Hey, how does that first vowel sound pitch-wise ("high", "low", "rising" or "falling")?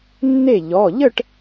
falling